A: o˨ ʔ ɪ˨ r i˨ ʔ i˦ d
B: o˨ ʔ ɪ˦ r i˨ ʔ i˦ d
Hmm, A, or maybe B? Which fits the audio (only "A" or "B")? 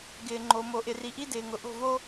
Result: A